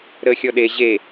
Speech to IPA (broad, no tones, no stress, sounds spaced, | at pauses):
ɾ əː xʲ ɔ ɗ e ʑ e